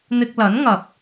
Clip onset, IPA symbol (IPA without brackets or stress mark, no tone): n̪